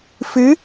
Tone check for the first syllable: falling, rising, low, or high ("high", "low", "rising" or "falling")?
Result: rising